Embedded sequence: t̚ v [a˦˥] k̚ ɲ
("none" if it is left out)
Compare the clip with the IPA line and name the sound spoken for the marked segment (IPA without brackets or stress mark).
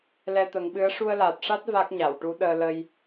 a˦˥